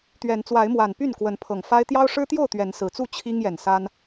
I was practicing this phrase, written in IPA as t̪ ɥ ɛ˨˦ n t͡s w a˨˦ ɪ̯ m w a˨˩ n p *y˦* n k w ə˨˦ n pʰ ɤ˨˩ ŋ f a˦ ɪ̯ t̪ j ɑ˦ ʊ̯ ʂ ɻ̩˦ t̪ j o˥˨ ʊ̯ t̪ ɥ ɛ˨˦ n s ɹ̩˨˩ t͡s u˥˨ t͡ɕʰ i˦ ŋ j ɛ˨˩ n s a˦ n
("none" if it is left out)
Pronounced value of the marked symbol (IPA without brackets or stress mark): y˥˨